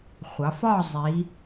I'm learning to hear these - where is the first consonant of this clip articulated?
uvula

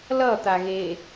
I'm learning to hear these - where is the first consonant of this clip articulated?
tongue tip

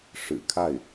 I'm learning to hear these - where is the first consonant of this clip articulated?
retroflex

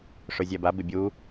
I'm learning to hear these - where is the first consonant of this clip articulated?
retroflex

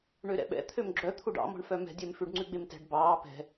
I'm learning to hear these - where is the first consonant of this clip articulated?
retroflex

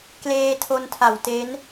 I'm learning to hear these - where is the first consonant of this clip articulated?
velum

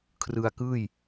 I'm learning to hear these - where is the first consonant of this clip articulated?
velum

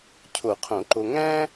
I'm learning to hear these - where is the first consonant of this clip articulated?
palate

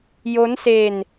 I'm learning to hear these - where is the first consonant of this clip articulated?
palate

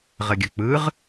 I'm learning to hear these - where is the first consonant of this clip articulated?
uvula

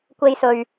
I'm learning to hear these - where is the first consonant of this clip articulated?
velum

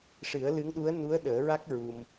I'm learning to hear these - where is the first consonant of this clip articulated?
retroflex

